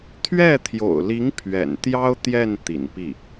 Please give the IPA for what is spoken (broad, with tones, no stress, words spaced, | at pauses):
t̪ʰɥɛ˥˩t̪ʰjo̰˨˩ʊ̯li˧˥ŋ pʰɥɛ̰˨˩n t̪jɑ˥ʊ̯t̪jɛ˥˩n t̪ḭ˨˩npi˥˩